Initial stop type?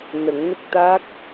plain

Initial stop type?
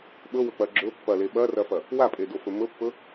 implosive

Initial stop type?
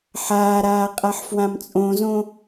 ejective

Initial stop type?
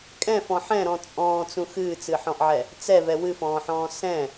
ejective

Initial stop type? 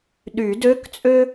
implosive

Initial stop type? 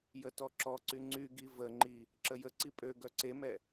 plain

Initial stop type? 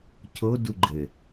aspirated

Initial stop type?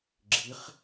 click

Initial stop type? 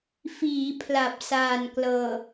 aspirated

